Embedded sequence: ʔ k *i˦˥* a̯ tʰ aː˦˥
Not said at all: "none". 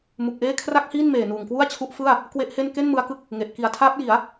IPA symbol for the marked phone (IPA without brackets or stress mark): i˩˦